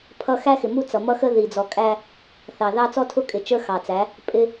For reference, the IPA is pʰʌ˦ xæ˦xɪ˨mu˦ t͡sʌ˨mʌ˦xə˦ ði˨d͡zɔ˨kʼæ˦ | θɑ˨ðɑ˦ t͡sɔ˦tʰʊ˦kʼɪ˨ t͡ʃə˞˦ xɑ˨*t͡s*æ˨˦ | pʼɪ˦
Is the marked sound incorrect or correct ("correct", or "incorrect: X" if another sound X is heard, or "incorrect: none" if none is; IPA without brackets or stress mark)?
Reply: correct